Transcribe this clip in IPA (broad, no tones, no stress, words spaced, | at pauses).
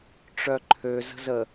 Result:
ʈ͡ʂœǃʰø zə̤zə